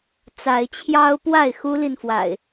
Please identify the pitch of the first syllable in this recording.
rising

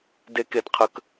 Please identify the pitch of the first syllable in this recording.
low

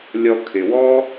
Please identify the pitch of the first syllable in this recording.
low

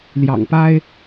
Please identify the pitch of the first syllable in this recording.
low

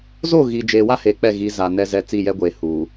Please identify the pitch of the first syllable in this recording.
falling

